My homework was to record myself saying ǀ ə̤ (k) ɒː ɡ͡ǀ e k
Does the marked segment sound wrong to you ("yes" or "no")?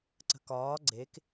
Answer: no